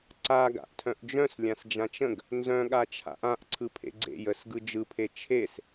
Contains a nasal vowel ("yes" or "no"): yes